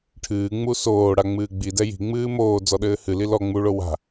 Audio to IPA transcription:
ʈʰ ɨː ŋ͡m u s oː ɽ a ŋ͡m ɨː ɡ͡b i d ɛ j i̤ ŋ͡m ɨː m oː d͡z ɔ ɗ ɘː h ɨ l i l ɔ ŋ͡m u ɭ o w a̤

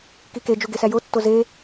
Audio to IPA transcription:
k i k e d͡ʒ u ɡ e s æ j o tː o z e

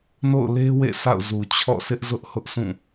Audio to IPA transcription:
n o̰˦˨ ʊ̯ l e˦ w ḛ˦˨ sʰ a̰˦˨ ʊ̯ z u˨ t͡ɕʰ ɔ̰˦˨ s ɪ˦ ʔ z ʊ˦ ʔ h ʊ˦ ʔ sʰ ũ˦˨

